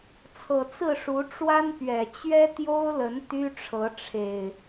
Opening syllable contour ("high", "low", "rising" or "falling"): low